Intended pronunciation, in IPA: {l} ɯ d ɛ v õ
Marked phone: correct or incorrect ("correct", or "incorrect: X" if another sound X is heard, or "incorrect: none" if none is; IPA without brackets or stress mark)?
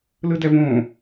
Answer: correct